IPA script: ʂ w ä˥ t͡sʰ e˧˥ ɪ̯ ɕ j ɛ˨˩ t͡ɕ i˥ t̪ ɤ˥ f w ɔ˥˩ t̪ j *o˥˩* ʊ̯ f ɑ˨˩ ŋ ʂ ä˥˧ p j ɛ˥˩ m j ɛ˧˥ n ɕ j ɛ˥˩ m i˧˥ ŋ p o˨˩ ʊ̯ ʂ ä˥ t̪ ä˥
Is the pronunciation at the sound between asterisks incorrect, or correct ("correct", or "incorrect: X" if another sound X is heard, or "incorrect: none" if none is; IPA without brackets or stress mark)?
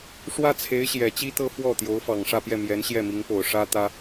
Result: incorrect: o˧˥